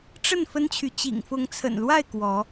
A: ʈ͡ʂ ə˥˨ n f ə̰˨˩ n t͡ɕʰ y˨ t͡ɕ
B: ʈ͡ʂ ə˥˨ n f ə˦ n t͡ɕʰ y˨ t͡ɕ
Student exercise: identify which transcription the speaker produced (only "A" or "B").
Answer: B